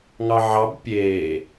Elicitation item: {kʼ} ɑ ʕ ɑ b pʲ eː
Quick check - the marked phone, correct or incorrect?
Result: incorrect